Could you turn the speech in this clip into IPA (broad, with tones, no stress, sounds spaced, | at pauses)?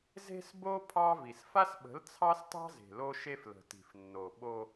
z e̤˦ s b o˦ pʰ ɑ˦ v i˨ s f a˦ s ɓ ə̤˨˦ l t͡sʰ ɑ˦ s t ɑ̤˦ z e̤˨ l o˦ ʃ e˦ f l ə̤˨ t i̤˨ f nː o˨ ɓ o˦